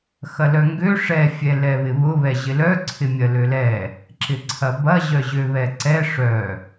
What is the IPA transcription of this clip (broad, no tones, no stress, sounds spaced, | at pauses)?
x ɐ l œ ŋ ɡ ø ʂ ɛ fʲ ɛ l ɛ β ɪ β ʊ β ɛ ʑ ɪ l œ ǀʰ ɪ mʲ ɐ l ø l ɛ | ǁ ɪ ǀʰ ɐ b ɐ ʑ œ ʑ ø β ɛ ǀ ɛ ʂ œ